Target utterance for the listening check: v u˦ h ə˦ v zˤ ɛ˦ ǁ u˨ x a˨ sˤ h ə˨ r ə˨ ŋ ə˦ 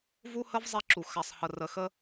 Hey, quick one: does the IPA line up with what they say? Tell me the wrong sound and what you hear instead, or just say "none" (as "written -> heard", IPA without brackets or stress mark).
ŋ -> x